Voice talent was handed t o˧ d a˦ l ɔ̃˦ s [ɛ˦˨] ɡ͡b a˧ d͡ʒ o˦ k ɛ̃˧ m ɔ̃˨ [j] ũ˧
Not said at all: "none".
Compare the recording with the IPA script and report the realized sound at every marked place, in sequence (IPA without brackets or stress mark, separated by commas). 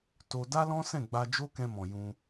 ɛ̃˦˨, j